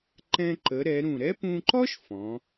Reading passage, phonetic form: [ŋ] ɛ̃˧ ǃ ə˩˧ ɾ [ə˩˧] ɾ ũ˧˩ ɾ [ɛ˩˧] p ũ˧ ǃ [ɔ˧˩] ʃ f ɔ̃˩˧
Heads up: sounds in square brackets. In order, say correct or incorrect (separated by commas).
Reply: incorrect, incorrect, incorrect, incorrect